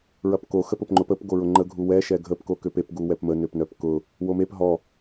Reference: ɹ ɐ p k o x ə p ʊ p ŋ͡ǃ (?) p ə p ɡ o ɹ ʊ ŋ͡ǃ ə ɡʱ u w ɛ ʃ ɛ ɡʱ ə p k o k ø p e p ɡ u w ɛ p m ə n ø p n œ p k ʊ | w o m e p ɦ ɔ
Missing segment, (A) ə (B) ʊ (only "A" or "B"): B